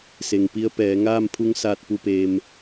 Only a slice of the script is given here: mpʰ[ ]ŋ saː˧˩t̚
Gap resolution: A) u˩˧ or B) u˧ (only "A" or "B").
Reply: B